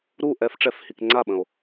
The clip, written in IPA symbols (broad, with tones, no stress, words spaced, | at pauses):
ɾu˥˨ ʔɛ˧˥fʈ͡ʂɛ˧˥fhi˨k ŋ͡ǀa˥˨ɓə̃˨o̯